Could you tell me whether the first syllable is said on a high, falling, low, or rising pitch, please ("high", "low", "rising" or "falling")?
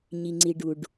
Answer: low